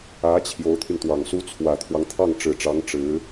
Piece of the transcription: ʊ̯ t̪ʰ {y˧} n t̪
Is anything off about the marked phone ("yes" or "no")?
no